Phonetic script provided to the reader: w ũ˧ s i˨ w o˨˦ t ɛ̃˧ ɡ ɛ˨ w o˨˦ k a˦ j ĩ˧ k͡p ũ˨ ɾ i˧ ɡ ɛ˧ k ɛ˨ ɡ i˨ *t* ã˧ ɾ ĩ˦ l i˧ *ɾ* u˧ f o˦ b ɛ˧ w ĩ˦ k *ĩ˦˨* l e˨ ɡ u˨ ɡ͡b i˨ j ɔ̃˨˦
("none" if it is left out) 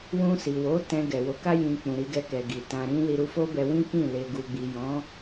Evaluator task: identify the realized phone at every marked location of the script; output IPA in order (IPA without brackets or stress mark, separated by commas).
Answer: t, ɾ, ĩ˦˨